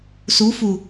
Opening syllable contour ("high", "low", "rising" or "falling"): rising